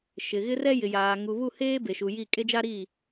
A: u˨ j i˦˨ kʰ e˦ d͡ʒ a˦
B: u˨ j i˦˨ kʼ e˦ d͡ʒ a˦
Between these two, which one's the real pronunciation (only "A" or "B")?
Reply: B